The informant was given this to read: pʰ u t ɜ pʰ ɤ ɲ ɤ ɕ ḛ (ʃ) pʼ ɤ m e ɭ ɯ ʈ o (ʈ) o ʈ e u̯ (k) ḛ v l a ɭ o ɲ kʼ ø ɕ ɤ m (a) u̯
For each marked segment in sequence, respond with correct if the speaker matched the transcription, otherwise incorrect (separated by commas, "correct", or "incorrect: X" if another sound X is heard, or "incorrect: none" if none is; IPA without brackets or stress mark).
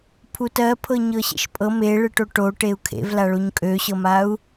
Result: correct, correct, incorrect: kʰ, correct